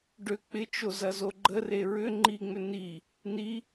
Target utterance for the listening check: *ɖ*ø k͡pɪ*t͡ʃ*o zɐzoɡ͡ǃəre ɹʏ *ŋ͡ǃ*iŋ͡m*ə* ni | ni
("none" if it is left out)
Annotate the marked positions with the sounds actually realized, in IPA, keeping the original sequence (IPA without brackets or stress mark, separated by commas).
ɖ, t͡ʃ, ŋ͡ǃ, ʏ